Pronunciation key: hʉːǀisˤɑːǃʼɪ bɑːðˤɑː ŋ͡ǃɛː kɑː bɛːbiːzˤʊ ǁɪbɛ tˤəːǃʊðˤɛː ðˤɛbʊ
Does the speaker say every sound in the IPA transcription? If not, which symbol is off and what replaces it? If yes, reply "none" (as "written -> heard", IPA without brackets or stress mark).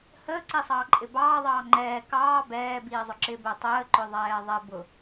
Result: ʉː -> əː